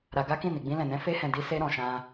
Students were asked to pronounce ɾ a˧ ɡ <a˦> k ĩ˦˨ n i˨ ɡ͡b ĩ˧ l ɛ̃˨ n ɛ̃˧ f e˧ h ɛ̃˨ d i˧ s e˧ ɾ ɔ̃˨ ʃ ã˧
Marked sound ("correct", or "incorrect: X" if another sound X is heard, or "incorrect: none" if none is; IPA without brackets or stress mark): correct